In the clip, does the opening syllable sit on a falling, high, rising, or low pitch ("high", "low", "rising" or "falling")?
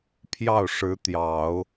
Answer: falling